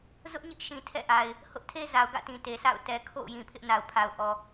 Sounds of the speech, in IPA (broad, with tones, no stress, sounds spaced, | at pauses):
z ʊ˦ ʔ ɲ ɪ˦ ʔ ʃ ĩ˨ tʰ ɛ̰˦˨ ʔ a˨ ɪ̯ | h ʊ˦ ʔ tʰ e˦ z a˨ ʊ̯ ɡ ä̰˦˨ t ĩ˨ t e˨ sʰ a̰˦˨ ʊ̯ t ɛ˨ kʰ o̰˦˨ ʊ̯ j ĩ˨ pʰ ɪ˦ ʔ n a˨ ʊ̯ pʰ a˨ ʊ̯ ʔ ɔ˨